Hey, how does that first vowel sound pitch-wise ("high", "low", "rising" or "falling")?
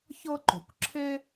high